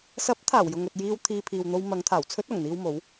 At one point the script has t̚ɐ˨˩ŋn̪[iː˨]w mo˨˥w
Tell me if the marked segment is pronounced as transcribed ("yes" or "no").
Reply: no